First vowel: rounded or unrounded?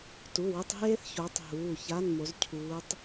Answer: rounded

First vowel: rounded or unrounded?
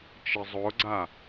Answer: unrounded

